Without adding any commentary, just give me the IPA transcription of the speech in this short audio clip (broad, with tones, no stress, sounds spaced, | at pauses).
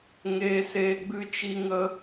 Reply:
ŋ eː˦ s eː˦ ɡ͡b ɨ˧ t͡ʃ i˦ ŋ ə˦